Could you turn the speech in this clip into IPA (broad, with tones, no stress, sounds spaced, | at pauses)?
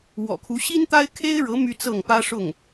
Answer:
w ɔ̰˨˩ kʰ u˧˥ ɕ i˥ n t̪ a˥ ɪ̯ kʰ e˥ ɪ̯ ɻ ɤ˧˥ m y˥ t͡s ɤ˥˩ ŋ p ä˥ ʂ ʊ˥˩ ŋ